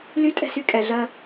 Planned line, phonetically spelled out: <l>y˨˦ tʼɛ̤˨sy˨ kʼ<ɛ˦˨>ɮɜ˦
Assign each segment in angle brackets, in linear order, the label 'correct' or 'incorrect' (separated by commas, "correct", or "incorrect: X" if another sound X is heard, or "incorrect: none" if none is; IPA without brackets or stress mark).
correct, incorrect: ɛ˨